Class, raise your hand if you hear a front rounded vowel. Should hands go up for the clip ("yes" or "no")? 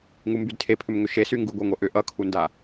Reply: yes